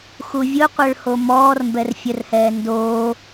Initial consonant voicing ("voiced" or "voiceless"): voiceless